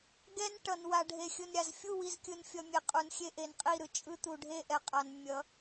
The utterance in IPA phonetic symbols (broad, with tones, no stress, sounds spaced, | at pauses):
ɡ ɛ˦ n ʈ ʌ˨ n w a˨ ɖʱ e˨ xʲ ɯ˨ n ɾʲ a˨ z fʲ u˦˨ w i˨ z kʲ ɯ˨ n fʲ ʌ˨ mʲ e˨ qʼ u˨ n xʲ e˦ ʔ e˨ n qʼ i˦˨ ɾ ɯ˨ t͡ʃʼ ɯ˦ t̪ u˨ ɖʱ e˦˨ ʔ ɛ˨ qʼ a˨ n mʲ ʌ˨˦